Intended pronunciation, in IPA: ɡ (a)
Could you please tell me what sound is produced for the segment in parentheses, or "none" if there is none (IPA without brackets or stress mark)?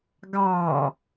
ɑ